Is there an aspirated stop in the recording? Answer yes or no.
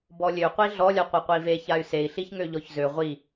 no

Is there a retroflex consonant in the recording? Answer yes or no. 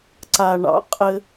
yes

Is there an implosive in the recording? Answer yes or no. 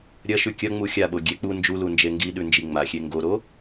yes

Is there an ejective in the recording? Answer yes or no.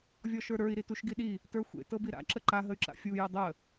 no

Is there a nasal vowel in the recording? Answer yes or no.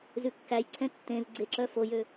yes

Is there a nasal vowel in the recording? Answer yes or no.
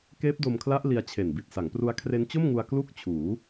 no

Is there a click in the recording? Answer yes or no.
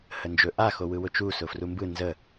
no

